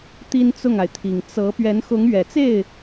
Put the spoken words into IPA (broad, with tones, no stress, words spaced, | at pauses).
t̪i˥nt͡sʊ˥˩ŋa˩ɪ̯t̪ʰi˨˩ŋ t͡sɤ˧˥ pɥɛ˧˥nxʊ˧˥ŋɥɛ˨˩t͡se˥˩ɪ̯